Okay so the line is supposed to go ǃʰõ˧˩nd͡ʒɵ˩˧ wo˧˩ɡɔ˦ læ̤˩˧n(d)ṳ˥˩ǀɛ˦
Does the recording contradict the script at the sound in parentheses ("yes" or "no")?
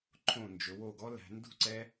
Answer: no